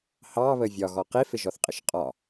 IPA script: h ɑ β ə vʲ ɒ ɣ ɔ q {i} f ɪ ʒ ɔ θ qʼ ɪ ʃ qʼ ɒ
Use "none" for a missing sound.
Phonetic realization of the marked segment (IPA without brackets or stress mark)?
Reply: i